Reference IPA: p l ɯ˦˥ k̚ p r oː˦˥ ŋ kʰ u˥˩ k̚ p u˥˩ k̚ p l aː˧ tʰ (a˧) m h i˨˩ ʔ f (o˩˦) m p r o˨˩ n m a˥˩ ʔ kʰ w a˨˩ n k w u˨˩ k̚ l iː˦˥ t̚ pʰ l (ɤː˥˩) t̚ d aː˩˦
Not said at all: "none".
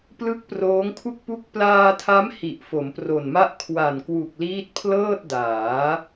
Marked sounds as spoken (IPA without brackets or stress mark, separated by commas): a˦˥, o˩˦, ɤː˥˩